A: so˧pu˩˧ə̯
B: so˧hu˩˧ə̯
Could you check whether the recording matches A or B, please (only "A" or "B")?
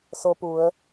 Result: A